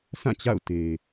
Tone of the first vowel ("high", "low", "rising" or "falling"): falling